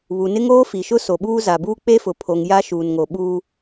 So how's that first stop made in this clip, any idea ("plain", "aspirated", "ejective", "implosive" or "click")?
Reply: implosive